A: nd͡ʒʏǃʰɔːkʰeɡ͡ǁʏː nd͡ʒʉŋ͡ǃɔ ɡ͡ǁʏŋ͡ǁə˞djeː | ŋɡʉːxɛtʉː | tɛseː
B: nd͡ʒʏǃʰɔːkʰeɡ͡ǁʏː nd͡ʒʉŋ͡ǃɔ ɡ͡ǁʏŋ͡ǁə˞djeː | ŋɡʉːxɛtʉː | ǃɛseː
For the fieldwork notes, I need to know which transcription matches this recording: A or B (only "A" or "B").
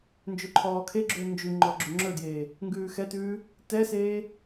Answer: A